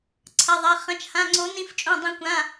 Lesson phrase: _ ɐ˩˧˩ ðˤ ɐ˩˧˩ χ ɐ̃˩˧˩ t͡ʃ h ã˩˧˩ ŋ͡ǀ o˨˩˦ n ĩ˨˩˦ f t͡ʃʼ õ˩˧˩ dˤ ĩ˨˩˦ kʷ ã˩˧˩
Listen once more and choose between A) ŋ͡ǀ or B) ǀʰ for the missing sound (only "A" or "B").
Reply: B